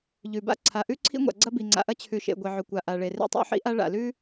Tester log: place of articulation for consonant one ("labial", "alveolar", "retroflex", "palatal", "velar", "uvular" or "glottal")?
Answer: palatal